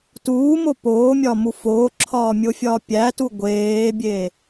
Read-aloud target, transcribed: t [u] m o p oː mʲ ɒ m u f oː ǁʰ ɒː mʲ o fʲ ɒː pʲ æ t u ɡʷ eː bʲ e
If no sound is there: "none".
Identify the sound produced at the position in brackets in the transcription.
uː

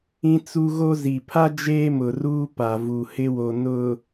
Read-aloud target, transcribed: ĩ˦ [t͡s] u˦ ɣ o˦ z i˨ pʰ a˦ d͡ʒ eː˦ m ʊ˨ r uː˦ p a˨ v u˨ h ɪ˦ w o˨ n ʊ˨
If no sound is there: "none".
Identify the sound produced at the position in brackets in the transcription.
t͡s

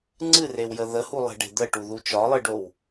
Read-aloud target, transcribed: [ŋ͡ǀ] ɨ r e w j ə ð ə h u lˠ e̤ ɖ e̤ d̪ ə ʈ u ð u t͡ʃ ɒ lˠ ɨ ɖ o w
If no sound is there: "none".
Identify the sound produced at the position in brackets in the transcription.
ŋ͡ǀ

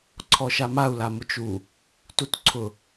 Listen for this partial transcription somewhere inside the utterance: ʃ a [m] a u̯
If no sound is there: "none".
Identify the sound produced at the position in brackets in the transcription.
m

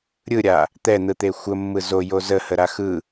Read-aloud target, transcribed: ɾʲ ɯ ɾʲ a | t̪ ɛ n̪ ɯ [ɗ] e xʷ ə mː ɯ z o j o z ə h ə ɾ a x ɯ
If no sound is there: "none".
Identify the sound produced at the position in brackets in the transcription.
t̪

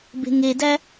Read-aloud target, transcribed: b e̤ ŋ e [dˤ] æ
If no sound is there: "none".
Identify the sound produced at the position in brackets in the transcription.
d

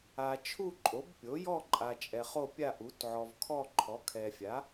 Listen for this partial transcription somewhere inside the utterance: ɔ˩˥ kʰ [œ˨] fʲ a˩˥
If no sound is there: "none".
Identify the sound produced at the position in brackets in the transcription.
ɛ˨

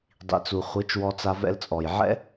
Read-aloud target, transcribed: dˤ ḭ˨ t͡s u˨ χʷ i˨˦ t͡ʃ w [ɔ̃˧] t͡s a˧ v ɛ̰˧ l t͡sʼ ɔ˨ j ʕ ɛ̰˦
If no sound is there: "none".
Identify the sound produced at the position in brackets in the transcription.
ɔ˧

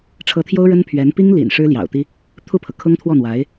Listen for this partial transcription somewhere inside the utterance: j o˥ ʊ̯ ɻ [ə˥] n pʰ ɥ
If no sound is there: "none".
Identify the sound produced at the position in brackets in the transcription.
ə˥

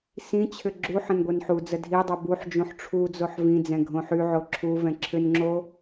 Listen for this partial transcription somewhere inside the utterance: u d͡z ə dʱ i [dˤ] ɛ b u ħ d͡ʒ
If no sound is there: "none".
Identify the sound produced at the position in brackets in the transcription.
dˤ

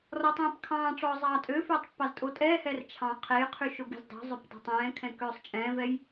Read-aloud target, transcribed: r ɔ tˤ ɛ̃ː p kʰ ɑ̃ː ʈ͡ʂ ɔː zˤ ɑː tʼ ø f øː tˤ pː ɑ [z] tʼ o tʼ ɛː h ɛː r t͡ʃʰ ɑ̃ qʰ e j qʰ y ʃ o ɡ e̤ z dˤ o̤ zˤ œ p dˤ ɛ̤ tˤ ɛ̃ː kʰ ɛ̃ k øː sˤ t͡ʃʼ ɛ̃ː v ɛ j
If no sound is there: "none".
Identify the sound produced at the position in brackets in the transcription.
z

